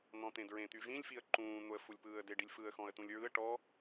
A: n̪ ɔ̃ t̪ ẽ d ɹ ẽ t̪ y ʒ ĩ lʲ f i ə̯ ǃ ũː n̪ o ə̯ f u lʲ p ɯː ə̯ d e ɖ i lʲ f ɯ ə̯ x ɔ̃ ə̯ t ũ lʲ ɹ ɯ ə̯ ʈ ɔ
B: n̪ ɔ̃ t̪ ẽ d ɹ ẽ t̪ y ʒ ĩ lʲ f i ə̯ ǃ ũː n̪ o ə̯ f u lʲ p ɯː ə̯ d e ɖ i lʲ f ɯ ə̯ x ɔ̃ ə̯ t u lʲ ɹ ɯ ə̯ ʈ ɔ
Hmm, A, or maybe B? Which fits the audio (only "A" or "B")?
A